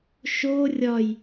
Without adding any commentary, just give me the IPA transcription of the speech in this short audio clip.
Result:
ʃ o rʲ ɒ j

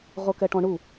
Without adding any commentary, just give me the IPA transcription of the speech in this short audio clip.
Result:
ʁ o k ɛ ʈ ɔ̃ ɳ u

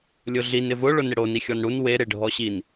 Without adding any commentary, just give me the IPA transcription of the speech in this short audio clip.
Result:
lʲ ʊ ɮ i n ɪ v ʊ ɭ ʊ n ɪ ɽ o n i xʲ ɔ n ɽ u n w e ɾ e ɖʱ ɔ ɕ i n

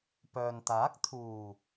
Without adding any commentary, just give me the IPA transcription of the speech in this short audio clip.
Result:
p œː˨ n t̪ aː˨˥ k̚ t̪ʰ uː˨˩

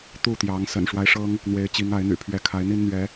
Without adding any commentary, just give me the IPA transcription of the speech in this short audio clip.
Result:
t̪ u˥˨ t̪ j ɑ˨˦ ŋ s ə̰˨˩ n ʂ w a˦ ɪ̯ ʂ ɤ˦ ŋ | n̪ w e˨˦ ɪ̯ t͡ɕ i˨˦ ŋ a˨˦ ɪ̯ n̪ y̰˨˩ pʰ ɥ ɛ˨˦ kʰ a˨˦ ɪ̯ n̪ i˦ n n̪ ɥ ɛ˨˦

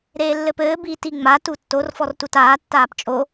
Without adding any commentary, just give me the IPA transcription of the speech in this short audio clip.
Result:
ɾ eː lː ɘ p ɘː b iː t i ŋ͡m a t u tː o r f ɔ r t u t aː tː aː p t͡ʃʼ o

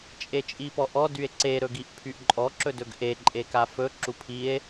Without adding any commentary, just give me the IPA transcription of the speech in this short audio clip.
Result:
t͡ʃʼ e t͡ʃʼ i p ɔ ʔ ɔ d y e̯ ǀ e ɾ ɵ ɡ i ʔ pʰ y ʔ ǃʼ ɔ ǁ ɵ d ɵ ɡ ʔ e ǃʼ e k a f ɵ ǁ u pʰ i e̯

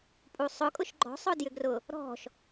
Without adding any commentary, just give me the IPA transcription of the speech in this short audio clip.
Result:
pʼ u sˤ ʊ kʼ ʊ ʃ ɡ͡ǃ ɔ̤ sˤ ʊ d j ʏ ɡ r ʊ | ɾ ɔ̤ ʃ

